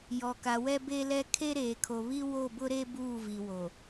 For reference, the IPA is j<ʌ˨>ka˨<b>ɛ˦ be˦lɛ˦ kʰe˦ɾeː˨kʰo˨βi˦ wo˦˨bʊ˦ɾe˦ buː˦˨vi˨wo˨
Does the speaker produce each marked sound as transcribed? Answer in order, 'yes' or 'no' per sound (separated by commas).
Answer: no, no